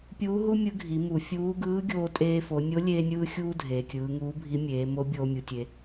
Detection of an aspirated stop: absent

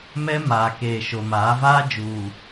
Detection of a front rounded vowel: absent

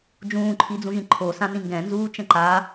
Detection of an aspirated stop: present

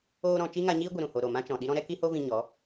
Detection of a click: absent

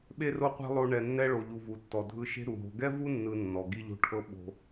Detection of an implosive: present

